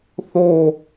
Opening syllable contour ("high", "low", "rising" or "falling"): falling